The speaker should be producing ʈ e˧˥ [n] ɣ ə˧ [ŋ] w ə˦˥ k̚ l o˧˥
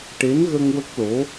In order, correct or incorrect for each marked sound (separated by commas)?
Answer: correct, correct